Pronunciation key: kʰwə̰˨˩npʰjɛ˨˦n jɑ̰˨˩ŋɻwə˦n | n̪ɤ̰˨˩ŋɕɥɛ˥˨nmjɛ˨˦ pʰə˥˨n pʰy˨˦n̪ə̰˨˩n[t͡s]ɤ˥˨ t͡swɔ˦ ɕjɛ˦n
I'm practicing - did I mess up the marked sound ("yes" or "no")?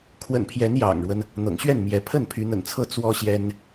yes